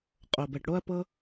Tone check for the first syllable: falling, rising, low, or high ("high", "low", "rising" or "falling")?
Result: low